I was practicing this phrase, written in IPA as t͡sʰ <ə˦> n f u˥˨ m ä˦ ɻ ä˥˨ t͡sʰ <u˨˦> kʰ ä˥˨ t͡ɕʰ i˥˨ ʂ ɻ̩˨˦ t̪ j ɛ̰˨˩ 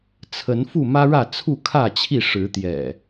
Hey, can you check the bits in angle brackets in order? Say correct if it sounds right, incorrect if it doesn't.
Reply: incorrect: ə˨˦, incorrect: u˥˨

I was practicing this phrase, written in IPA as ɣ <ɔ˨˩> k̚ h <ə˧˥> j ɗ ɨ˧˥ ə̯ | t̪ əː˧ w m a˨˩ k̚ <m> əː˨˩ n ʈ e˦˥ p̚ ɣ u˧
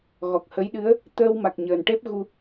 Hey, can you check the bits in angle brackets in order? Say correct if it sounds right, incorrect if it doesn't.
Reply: correct, correct, incorrect: ɲ

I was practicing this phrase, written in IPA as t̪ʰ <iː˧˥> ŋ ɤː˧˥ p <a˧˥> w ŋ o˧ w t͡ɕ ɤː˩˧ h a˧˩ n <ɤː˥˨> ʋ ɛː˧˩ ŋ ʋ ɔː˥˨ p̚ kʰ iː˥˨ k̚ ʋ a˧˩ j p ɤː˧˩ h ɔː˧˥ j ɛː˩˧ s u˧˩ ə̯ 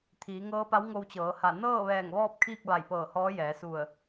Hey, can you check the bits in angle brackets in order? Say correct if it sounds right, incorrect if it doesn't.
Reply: incorrect: iː˩˧, correct, correct

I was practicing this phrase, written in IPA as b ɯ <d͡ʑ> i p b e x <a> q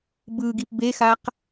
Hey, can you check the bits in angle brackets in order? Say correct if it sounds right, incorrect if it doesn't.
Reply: incorrect: ɡ, correct

